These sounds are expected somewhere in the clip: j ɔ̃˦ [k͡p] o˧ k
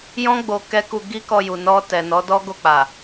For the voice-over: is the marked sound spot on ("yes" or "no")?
no